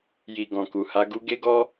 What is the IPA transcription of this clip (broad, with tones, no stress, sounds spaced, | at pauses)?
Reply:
j i˨ ɡ ɔ̃˨ k u˨ h a˨˦ ɡ u˧ ɡ e˦ ɡ ɔ˦